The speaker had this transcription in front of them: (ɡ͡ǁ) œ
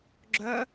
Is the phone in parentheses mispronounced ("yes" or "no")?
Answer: no